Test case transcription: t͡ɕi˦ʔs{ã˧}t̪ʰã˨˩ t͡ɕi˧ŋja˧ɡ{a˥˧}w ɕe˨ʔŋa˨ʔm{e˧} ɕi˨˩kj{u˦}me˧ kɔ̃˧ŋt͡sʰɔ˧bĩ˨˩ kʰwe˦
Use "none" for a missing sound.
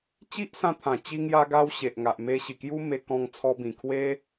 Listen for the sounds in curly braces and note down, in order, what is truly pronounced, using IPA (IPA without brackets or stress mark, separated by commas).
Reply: ã˧, a˧, e˧, u˦